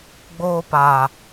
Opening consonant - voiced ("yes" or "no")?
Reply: yes